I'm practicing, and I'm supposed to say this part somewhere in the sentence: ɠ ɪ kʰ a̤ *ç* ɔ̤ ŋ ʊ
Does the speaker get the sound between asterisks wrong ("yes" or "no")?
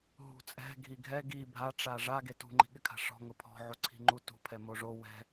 yes